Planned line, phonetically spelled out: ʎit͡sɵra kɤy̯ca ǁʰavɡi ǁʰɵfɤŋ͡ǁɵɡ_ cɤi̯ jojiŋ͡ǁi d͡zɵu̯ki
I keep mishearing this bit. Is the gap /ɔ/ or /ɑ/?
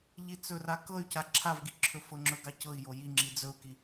ɑ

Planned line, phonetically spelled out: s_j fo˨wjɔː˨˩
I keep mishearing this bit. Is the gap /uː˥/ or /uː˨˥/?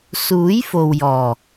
uː˨˥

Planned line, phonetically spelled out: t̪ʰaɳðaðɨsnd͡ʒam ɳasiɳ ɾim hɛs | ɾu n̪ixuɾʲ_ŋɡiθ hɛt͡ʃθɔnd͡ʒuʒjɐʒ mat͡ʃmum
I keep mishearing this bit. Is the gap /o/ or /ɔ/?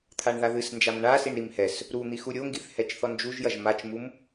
o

